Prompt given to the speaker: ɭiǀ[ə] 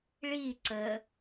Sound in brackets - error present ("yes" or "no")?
no